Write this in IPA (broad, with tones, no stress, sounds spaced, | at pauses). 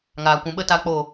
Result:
ŋ aː˨ kʷ ũ˨ ɓ ə˧ t a˧ k͡p o˦˨